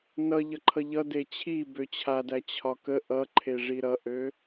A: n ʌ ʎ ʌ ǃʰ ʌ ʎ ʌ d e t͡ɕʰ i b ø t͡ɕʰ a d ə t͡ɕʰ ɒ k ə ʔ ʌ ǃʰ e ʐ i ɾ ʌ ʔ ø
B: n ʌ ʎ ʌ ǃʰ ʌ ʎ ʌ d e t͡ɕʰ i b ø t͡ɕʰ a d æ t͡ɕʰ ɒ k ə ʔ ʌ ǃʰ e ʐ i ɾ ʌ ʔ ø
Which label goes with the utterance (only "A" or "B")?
B